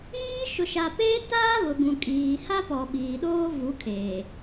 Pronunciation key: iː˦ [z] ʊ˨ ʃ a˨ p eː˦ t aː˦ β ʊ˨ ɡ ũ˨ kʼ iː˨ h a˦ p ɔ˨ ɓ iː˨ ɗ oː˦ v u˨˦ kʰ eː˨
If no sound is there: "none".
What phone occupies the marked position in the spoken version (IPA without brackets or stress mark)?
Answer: ʃ